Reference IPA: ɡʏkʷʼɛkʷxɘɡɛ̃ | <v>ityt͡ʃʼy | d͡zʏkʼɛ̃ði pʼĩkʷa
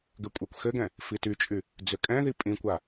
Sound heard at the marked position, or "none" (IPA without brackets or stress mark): f